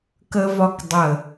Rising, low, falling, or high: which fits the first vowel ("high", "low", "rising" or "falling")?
high